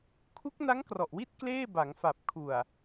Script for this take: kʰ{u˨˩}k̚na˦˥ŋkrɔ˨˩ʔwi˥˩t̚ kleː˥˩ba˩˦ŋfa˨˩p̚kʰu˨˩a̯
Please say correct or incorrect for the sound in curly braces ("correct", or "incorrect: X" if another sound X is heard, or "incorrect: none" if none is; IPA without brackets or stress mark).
incorrect: u˦˥